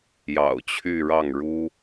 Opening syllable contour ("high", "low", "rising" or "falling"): low